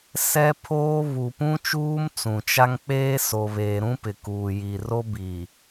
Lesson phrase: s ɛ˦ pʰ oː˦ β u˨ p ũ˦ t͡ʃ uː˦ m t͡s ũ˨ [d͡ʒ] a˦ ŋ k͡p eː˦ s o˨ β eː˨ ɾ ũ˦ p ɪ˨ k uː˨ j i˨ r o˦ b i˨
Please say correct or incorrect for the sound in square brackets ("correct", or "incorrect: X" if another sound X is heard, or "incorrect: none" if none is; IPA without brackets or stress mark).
incorrect: t͡ʃ